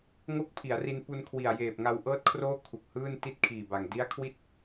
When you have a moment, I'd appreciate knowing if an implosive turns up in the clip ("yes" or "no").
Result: no